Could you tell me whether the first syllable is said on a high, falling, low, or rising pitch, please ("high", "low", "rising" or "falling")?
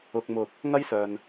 low